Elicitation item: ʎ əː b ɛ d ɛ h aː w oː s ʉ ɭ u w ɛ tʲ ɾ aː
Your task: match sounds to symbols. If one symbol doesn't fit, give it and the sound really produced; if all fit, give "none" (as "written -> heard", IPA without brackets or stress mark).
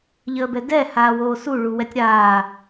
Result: ʉ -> u